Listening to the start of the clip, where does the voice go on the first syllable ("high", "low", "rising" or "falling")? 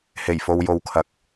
low